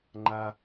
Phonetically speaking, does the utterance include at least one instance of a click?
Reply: yes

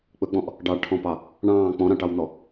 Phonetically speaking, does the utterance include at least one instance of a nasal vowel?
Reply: yes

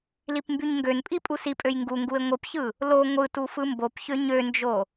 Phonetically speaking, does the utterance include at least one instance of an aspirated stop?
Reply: no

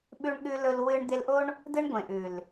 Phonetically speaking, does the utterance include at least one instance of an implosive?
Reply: yes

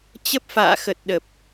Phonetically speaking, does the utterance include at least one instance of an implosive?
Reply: yes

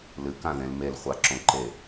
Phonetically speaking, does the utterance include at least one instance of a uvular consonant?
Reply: yes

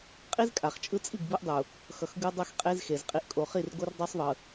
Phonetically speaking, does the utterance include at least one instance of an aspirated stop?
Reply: no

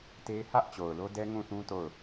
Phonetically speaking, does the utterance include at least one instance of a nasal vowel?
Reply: yes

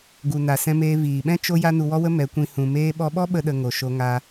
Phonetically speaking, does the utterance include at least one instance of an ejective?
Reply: no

